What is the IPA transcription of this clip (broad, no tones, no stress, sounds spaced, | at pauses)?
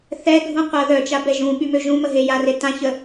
θ ɛ ɡʱ ũ qʷ a ð œ t͡ʃ a b ɛ ʒ ũ ɓ y m ø ʒ ũ m ə ɦ e j a r e t ã ç ə